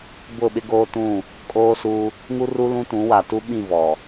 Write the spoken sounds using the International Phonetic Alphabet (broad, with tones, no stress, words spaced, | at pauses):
bʊ˦˨ɓɪ˦ɡoː˦ tũ˦˨ | kʼoː˦suː˦ | ŋu˦ ru˦lũ˦tũ˨˦ wa˨tu˦ɓĩ˦˨ vɔ˨